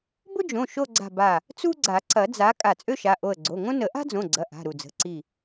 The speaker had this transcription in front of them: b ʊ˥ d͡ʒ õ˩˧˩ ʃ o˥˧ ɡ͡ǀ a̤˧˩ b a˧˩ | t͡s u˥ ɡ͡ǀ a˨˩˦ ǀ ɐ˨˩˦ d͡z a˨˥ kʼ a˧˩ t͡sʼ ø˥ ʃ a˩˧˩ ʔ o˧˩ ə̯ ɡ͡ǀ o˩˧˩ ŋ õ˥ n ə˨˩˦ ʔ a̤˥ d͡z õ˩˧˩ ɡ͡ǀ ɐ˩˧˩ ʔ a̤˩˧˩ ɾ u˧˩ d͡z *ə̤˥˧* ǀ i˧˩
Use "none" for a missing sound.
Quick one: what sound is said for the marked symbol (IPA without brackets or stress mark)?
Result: ə̤˩˧˩